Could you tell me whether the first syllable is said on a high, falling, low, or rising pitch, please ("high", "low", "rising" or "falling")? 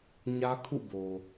high